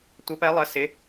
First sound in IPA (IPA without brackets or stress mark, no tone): tʷ